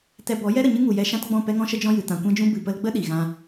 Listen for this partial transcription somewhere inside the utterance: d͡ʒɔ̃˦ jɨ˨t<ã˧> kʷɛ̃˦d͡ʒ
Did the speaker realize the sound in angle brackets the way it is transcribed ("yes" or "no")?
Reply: yes